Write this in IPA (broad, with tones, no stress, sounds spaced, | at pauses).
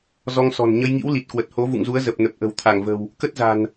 z ɔ˧ ŋ s ɔ̤˨˩ n ɲ ə˧ j ŋ ḭ˧˥ w l i˨˩ t̚ k w ə˨˩ t̚ h o˨˦ v ṵ˧˨ ŋ z u˨˦ ə̯ z ə˨˩ p̚ n ə˨˩ p̚ ʔ ə̤˨˩ w t̪ʰ a˧˩ ŋ v ə̤˨˩ w | k ə˦˥ t̚ z a̤˨˩ n